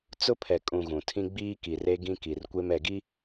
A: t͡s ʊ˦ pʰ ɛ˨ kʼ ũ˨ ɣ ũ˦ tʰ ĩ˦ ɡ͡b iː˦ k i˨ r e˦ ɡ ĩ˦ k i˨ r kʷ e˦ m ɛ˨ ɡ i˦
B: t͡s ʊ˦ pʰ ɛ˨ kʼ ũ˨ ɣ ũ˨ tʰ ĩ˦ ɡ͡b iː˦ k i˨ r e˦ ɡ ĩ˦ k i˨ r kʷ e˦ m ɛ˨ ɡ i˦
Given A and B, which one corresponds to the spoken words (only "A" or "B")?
B